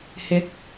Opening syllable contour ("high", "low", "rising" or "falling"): rising